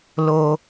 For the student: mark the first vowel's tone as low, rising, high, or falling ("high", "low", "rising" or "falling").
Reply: low